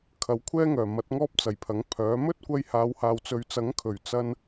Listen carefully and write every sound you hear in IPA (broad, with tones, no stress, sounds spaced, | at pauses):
kʰ ɐ˨˥ w kʷʰ ɛː˥ ŋ œː˨˩ m ɐ˨˥ t̚ ŋ ɔː˥ p̚ t͡s ɐ˨˩ j pʰ ɐ˨˥ ŋ pʰ œː˨˥ m ɵ˥ t̚ kʷ ɐ˧ j h aː˨˧ w h aː˨ w t͡s ɵ˨ ɥ t͡s ɐ˨˥ ŋ kʰ ɵ˨˩ ɥ t͡s ɐ˧ n